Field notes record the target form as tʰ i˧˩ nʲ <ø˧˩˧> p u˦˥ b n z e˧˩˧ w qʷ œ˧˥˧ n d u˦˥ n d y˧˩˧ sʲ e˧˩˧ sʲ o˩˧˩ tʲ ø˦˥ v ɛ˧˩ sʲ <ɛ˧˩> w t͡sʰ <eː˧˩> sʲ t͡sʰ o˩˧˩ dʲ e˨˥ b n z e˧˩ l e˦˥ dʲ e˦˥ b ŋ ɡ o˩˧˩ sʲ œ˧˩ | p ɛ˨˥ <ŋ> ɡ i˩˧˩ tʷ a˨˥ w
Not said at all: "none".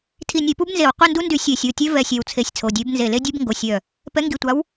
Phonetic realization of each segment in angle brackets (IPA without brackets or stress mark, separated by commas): e˧˩˧, ɛ˧˩, e˧˩, ŋ